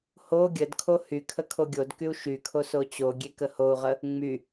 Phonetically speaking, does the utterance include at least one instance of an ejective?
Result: no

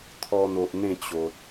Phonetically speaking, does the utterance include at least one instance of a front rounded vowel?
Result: no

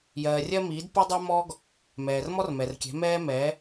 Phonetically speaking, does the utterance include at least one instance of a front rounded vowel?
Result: no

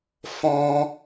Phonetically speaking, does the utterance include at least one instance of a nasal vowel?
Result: yes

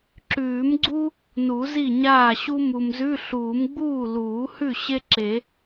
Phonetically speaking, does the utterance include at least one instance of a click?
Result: yes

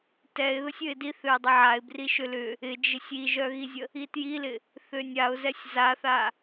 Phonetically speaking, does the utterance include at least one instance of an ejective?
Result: no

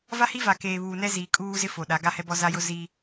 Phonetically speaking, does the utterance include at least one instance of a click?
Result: no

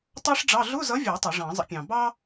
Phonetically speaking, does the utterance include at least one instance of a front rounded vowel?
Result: no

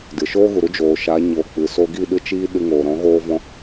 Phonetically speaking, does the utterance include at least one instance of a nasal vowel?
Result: yes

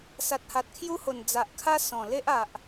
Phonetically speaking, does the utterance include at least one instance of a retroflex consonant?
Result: no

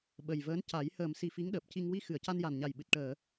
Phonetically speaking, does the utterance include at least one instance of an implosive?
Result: yes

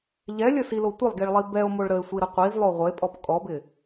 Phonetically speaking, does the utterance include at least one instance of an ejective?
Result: yes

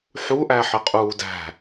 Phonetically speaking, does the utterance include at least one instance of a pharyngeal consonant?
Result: yes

